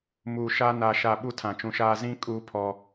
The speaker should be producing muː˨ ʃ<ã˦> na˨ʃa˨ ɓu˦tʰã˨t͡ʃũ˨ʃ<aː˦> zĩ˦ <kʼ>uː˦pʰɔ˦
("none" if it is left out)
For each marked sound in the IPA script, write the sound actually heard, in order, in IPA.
a˦, aː˦, kʼ

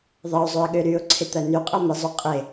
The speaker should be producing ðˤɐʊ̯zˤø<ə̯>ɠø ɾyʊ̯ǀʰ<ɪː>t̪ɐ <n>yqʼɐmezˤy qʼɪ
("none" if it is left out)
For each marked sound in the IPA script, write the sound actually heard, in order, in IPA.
ə̯, ɪ, n

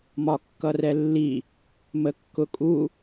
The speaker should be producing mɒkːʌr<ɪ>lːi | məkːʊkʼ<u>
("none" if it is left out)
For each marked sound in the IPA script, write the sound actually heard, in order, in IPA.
ɛ, u

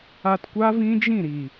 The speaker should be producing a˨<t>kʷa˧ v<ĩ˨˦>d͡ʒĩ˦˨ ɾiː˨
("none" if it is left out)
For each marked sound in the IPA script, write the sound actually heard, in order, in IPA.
t, ĩ˧

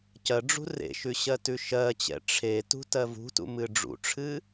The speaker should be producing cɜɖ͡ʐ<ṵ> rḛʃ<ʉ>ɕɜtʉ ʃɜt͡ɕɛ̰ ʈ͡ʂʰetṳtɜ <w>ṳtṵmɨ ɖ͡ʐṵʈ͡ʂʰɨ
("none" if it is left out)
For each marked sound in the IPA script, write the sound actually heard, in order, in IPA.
ṳ, ʉ, v

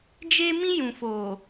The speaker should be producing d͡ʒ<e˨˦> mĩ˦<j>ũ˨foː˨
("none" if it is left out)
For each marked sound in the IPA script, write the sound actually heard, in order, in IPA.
e˦, j

